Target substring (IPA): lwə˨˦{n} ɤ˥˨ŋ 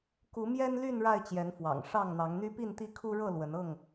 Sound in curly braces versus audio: correct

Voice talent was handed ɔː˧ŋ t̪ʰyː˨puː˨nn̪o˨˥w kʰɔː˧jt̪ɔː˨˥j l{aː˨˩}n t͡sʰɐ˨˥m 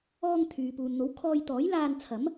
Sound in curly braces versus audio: incorrect: aː˧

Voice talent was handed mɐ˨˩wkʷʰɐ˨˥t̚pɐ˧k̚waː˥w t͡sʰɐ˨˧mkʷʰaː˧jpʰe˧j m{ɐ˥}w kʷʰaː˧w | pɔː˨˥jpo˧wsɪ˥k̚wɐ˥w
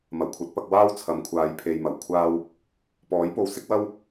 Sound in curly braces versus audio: incorrect: ɐ˨˩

